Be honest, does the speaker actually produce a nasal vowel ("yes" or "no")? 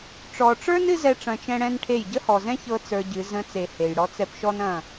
yes